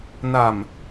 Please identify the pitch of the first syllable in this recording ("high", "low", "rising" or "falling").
low